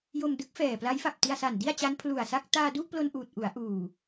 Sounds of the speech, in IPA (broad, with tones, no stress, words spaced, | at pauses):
jo˧mdɯ˦˥k̚fɛː˨˩ pla˦˥jfa˨˩p̚ti˧a̯sa˨˩n di˥˩a̯t͡ɕa˦˥npʰlu˨˩a̯sa˥˩k̚ taː˧du˥˩ʔplo˧n ʔuː˨˩t̚ʔu˩˦a̯ʔuː˨˩